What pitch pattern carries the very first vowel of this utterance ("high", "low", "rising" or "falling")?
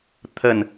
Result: low